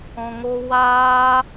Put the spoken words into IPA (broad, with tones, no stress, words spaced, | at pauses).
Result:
ɔ̃˧ŋo˦ waː˦